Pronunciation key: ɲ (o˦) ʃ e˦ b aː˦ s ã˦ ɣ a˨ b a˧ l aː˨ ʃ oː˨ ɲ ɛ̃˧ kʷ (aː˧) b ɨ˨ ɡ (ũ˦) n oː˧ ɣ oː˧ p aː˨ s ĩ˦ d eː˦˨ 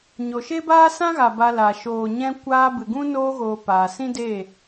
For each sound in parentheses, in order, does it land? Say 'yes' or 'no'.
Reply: no, yes, yes

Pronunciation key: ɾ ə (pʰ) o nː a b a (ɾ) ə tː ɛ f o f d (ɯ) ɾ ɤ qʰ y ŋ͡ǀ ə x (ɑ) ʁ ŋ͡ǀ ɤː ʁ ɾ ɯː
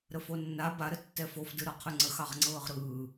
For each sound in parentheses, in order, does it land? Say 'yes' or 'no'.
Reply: no, yes, yes, yes

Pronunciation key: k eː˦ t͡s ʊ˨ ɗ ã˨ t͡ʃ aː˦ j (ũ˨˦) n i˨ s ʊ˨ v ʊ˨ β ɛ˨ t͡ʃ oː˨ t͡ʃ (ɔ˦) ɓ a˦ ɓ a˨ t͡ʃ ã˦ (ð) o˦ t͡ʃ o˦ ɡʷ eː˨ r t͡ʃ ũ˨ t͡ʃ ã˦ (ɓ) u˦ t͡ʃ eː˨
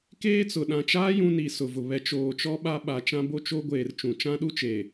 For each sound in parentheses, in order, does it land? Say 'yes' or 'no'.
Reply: no, yes, no, no

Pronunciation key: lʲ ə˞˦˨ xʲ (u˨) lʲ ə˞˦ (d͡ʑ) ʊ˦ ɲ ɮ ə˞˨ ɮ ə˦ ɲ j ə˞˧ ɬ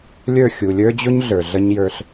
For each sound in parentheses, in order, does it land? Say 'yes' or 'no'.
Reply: yes, yes

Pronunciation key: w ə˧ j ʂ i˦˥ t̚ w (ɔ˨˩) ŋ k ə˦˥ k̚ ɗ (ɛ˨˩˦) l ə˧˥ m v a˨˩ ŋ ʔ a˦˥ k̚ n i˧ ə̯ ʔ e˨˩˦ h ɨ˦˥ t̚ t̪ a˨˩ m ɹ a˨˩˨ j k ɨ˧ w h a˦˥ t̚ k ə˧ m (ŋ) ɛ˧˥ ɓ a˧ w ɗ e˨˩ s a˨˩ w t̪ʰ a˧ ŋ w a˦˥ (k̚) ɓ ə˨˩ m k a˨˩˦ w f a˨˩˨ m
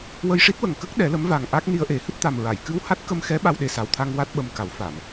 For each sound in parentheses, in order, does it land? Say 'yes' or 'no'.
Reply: no, yes, no, no

